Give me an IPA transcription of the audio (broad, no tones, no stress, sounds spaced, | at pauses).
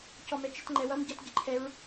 c ɔ m ɛ t͡ʃ ɪ t ŋ͡ǃ ɛ w ʌ m ɟ ʌ t ɟ ɪ ǃʰ ɛ ɹ